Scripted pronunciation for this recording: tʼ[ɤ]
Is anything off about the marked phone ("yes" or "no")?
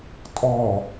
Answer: yes